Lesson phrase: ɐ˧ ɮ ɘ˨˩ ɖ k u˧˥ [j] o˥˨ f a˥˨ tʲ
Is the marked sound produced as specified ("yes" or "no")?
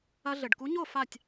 no